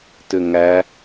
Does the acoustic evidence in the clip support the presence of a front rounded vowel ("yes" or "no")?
yes